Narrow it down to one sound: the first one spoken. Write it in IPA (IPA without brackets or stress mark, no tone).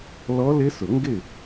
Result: l